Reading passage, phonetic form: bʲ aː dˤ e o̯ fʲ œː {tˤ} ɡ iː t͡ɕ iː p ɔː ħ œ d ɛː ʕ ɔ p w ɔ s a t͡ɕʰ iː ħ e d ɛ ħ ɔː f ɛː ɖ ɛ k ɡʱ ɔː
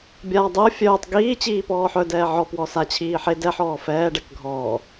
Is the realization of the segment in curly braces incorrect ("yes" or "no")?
no